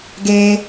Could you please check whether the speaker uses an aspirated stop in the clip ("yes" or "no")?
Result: no